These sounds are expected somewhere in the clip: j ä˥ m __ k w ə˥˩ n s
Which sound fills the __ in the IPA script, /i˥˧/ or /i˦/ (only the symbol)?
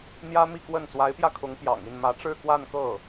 i˥˧